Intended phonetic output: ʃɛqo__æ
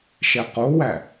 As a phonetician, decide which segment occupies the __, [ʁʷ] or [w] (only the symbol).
w